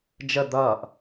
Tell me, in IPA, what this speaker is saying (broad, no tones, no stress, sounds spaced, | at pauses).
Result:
d͡ʒ ə d̪ ʌː ʔ